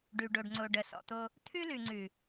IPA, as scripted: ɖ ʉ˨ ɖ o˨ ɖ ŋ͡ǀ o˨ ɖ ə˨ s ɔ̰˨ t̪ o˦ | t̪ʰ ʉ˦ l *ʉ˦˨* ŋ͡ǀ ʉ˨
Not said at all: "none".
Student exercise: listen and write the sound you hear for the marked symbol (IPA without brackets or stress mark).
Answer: ʉ˨